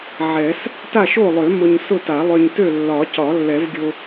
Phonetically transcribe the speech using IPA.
ʕ ɛ˨˩˦ s | t a˥˨ ʃ o˥˨ lˠ ø˨˩˦ m ʊ˧ ɲ s ʊ˥˨ t a˨˩˦ lˠ ø˧ ɲ t ø˥˨ lː ɒ˨˩˦ c ɒ˨˩˦ lː ɛ˨˩˦ v ɡʲ o˧

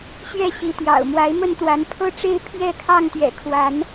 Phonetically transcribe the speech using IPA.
ɕ ɥ ɛ˥˨ ɕ i˨˦ t̪ j ɑ̰˨˩ ʊ̯ m w a˨˦ ɪ̯ m ə˥˨ n t̪ w a˨˦ n pʰ ɤ˦ ʈ͡ʂ e˦ ɪ̯ pʰ j ɛ˥˨ kʰ ɑ˥˨ ŋ t̪ ɥ ɛ̰˨˩ kʰ w a˨˦ n

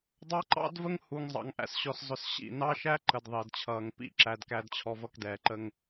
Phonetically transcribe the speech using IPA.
dˤ ɑ˦ ǃ ɑ̰˦ d v ə˦ ŋ h u˨ ŋ zˤ ɑ̰˨ ŋ ʔ æ̰˨ s ɕ ɔ˨ s zˤ ʊ˨ s ɕ ḭ˦˨ n ɑ˦ ʃ æ˦ ǃ ə˨ d ðˤ ɪː˨ d t͡ɕʰ ʌː˨ ŋ p ḭ˦˨ ǁ æ˨ d k æ˨ d t͡ɕʰ ɔ˨ v ʌ˨ k d ɛː˨ ǃ ə˦ ŋ

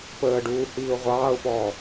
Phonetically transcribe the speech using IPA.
p əː ɖ uː h iː ʊ̯ ʁʷ ɑː ʊ̯ p ɔː

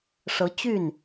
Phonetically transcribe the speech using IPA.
ʂ ɤ˧˥ t͡ɕ y˥˩ n

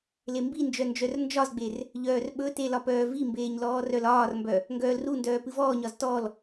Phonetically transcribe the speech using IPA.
l e m b i n d͡ʒ œ n d͡ʒ œ r n d͡ʒ ɒ z ɡ͡b e r | ʎ œː r ɓ ɵ t e l ɒ p œː v i m b eː ɲ l ɔː r œ l ɒː r m b œ | ŋ ɡ œː l r u n d œː p ɨ v ɔː ɲ ɒ z t ɔ l

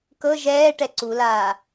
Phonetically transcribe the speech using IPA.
k ɤ ʒ ɛː ʈ ɛ ǀ u l aː

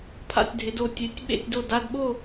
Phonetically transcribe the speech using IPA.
pʰ a̰˥˧ tʲ dʱ ɪ˧˥ d o˥˧ tʲ e˧˥ tʲ ɓ ḛ˥˧ tʲ d o˥˧ d a˥˧ d ɓ o˥˧

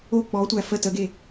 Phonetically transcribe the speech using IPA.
o k͡p ɔ tʷ æ f ə t ə ɡ e

